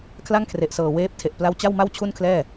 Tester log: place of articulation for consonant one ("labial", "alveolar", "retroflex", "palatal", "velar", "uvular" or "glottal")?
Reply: velar